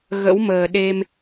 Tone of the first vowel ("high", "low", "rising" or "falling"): rising